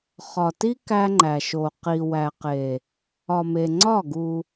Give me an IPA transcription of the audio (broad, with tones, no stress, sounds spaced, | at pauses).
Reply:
χ ɒ˨ t i˦ k æ˦ ŋ͡ǃ æ˨ ʃ o˨ q i˨ w æ˨ q e˨ | ɒ˨ m e˨ ŋ͡ǀ ɒ˦˨ ɡ u˦